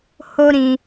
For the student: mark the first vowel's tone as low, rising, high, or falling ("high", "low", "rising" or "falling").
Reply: high